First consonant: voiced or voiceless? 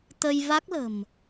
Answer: voiceless